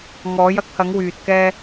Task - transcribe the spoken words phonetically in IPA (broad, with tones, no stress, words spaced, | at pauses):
ŋɔː˨˧jɐ˨˥k̚hɐ˨˧ŋ wyː˧t̚kɛː˥